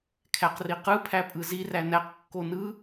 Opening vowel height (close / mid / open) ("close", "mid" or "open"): open